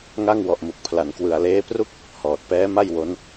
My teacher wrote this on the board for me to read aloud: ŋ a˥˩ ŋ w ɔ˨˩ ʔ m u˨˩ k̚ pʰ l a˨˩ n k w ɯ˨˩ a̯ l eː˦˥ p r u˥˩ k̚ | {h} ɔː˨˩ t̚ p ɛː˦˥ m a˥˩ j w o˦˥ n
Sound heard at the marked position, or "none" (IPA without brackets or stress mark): h